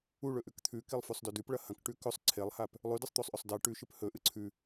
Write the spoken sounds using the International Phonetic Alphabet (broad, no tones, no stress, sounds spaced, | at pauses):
u ɭ ɵ ʔ ʉ k t̪ʰ ʉ k i lˠ f ʉ sˤ d ɵ d ʉ p ɭ ɐ h ɐ̃ k ʈ ʉ k ɵ sˤ ǀʰ e lˠ h a p | lˠ ʉ d ɨ sˤ t̪ o sˤ ʔ ɵ sˤ d a ʈ ʉ ʃ ɨ p h ɵ ʔ ɨ ǀʰ ʉ